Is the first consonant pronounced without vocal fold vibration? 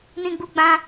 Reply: no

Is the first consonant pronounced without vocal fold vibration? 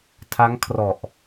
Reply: yes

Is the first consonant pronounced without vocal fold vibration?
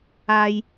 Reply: no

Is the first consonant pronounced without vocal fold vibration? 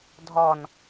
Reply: no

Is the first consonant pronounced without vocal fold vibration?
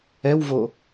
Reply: no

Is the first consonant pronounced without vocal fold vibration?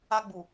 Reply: no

